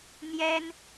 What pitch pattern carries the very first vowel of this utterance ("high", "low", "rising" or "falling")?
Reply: high